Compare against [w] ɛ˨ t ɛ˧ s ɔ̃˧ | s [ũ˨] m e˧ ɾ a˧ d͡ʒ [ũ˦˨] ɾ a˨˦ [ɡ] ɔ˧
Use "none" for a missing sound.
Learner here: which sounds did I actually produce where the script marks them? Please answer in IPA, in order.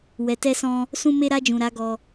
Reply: w, ũ˧, ũ˨, ɡ

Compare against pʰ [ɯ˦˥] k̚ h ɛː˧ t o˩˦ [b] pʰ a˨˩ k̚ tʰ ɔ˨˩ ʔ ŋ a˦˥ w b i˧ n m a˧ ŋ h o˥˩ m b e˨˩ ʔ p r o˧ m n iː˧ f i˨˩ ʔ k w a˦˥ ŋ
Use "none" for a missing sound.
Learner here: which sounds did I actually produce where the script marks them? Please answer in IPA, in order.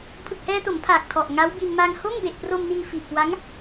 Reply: ɯ˨˩, m

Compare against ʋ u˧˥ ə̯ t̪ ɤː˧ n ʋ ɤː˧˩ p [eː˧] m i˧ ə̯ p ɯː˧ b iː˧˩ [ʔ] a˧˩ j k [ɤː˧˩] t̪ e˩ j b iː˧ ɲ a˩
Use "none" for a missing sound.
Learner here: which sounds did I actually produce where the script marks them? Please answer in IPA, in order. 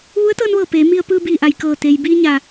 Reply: eː˩˧, ʔ, ɤː˧˩

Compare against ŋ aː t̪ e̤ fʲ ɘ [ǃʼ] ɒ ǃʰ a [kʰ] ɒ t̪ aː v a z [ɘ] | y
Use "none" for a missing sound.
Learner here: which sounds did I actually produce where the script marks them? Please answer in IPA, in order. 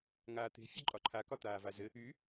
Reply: ǃʼ, k, ɘ

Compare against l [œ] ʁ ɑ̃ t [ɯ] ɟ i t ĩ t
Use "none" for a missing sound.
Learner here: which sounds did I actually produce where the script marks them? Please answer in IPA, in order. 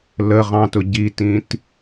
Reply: ə, ʊ

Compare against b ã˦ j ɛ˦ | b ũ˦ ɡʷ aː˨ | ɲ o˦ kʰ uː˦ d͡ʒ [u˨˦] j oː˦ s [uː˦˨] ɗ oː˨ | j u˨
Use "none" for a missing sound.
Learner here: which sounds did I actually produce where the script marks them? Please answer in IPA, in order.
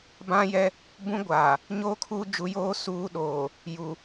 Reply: u˨˦, uː˨˦

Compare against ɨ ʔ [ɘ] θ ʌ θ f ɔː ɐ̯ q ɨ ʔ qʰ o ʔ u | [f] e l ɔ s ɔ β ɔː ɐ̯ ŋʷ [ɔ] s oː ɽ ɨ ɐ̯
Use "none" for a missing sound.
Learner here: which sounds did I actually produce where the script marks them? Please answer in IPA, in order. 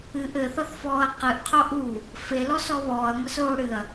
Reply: ɘ, f, ʌ

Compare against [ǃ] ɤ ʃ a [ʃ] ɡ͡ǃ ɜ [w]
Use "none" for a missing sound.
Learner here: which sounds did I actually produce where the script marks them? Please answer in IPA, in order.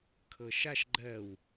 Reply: kʰ, ʃ, w

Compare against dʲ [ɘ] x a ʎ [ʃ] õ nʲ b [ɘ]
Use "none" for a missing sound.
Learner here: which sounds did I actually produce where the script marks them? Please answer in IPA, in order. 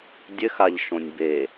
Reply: ɘ, ʃ, e

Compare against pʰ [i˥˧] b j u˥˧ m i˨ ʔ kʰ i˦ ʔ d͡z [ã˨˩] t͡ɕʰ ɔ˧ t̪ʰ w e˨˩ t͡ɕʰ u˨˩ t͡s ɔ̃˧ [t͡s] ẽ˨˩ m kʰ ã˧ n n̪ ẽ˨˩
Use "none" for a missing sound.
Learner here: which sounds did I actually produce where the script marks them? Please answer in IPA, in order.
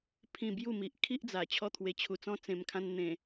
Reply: ĩ˥˧, a˨˩, t͡s

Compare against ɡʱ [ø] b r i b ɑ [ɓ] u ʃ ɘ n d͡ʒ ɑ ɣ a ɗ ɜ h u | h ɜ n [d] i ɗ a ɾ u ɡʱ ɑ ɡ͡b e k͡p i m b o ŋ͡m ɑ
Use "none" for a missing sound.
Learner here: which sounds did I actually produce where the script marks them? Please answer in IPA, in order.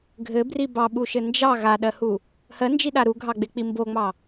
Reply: ɘ, ɓ, d͡ʒ

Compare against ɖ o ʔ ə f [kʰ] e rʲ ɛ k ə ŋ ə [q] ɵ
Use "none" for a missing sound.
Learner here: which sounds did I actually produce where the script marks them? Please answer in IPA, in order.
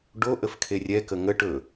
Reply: kʰ, ʈ

